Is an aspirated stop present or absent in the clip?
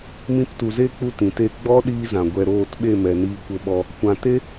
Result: absent